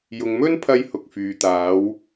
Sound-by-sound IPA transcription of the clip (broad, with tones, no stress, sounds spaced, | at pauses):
j ʊ˨ ŋ m ɵ˥ n pʰ ɐ˧ j h ʊ˧ k̚ f yː˨˧ t̪ aː˨˥ w